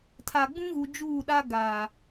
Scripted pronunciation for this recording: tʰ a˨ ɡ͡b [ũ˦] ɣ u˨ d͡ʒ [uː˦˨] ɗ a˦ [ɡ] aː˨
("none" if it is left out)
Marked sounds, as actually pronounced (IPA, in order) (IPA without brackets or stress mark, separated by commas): ũ˦, uː˦˨, ɡ